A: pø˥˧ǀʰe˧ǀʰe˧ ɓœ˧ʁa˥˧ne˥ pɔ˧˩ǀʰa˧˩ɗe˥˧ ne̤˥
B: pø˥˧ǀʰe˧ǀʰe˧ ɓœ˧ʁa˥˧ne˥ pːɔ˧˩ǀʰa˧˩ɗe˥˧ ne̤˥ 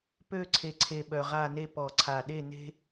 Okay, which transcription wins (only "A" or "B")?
A